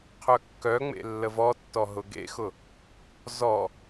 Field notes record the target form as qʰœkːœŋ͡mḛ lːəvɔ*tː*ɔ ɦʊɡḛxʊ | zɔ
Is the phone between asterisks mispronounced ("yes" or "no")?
no